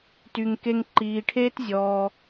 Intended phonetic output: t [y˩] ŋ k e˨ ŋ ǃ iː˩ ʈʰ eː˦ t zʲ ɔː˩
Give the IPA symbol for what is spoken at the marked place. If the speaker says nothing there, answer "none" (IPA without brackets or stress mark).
y˩